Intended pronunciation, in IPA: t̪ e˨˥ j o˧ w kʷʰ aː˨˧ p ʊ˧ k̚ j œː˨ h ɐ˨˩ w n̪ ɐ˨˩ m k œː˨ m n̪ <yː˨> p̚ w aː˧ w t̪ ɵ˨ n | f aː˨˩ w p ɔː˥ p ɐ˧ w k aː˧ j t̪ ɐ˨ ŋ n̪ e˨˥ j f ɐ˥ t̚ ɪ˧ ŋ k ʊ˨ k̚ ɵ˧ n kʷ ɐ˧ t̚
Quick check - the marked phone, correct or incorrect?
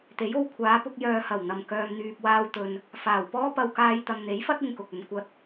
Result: correct